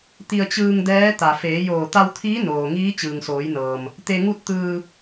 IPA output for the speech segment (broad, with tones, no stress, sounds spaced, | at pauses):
t̪ i˧ ə̯ t͡ɕ ɯː˧ ŋ d ɛː˧˥ t̪ a˩ f eː˩˧ j oː˧˩ t̪ a˧ w t̪ʰ iː˧˥ n oː˩ ŋ iː˧˥ t͡ɕ ɯː˩ ŋ s oː˩˧ j n ɤː˩ m | t̪ e˧ ŋ u˥˨ t̚ t̪ ɯː˧